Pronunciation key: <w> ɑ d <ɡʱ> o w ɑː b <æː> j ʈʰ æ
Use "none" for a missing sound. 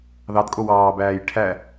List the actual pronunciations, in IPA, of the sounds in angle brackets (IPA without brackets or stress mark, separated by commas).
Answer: ð, kʼ, æː